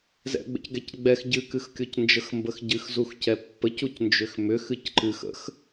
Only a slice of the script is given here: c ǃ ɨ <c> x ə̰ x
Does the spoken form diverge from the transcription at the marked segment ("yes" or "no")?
yes